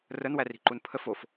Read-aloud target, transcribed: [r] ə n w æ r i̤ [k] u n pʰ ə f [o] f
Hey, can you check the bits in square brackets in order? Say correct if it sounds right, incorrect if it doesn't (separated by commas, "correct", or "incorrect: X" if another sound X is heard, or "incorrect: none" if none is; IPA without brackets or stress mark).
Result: correct, incorrect: ǃ, correct